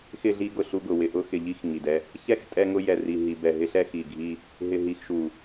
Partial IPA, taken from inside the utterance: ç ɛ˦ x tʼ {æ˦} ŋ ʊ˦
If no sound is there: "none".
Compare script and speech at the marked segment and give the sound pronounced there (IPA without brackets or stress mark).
ɛ˦